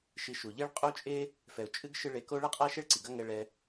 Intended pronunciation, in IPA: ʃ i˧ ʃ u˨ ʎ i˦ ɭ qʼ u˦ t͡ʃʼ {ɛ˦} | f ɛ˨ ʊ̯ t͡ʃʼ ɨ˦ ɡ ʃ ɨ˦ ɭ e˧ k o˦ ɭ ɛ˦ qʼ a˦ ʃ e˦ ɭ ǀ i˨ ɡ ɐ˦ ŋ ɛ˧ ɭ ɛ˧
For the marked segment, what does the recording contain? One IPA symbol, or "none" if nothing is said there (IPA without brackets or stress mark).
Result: e˦